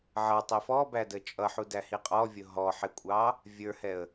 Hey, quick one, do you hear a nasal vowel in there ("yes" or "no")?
no